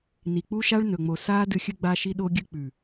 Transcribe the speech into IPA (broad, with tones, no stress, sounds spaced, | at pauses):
n i˨ k͡p u˦ ʃ a˦ ɭ n ɵ˨ ŋ͡m o˨ s aː˦ d ɨ˧ xʲ ɨ˧ ɡ͡b a˧ ʃ i˧ ɗ o˧ ɡʲ ɨ˧ k͡p ʉ˨